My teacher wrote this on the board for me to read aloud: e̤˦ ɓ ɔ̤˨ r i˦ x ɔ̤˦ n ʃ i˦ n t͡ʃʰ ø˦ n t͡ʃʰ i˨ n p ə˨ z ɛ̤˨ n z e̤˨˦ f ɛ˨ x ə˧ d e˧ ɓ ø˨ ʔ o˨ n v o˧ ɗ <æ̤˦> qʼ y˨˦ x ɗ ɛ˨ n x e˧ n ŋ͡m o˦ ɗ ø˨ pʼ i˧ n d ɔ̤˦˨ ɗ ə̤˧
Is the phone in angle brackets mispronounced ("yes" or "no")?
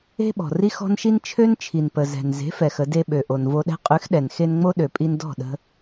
yes